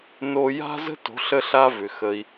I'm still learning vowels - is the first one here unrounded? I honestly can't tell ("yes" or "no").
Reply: no